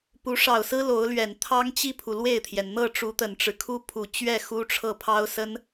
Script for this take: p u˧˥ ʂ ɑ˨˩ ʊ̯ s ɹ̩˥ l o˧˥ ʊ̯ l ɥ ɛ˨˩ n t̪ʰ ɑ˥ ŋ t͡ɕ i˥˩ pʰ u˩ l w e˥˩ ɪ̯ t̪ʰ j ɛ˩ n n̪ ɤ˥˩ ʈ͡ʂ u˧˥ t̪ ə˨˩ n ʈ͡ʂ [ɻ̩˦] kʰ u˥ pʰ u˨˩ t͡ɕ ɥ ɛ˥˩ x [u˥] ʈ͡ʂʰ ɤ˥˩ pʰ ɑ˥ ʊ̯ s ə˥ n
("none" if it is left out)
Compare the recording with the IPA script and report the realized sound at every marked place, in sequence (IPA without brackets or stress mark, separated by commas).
ɻ̩˦, u˥